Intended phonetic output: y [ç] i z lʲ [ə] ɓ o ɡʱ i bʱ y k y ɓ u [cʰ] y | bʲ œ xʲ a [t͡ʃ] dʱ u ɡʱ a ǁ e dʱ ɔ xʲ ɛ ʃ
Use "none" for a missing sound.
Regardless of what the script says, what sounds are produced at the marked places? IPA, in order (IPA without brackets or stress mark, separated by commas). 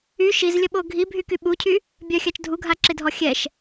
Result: ʃ, ə, cʰ, t͡ʃ